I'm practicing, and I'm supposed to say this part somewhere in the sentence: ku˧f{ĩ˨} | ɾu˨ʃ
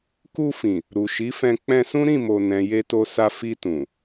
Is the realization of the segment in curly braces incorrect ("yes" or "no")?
no